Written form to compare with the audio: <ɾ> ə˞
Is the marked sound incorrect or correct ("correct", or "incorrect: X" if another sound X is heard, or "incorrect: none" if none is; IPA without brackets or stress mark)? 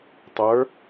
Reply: incorrect: tˤ